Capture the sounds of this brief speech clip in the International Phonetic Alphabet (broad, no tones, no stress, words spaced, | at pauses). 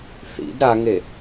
θḭd ɾaŋe